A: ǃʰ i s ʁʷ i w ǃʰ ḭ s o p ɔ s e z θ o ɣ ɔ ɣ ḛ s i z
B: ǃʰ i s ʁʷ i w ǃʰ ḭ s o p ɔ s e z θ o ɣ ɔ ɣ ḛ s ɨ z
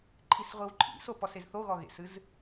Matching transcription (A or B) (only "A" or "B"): B